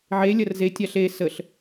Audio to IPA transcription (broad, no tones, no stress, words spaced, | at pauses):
ʕe lʲɐrze tʲaɬe səɬ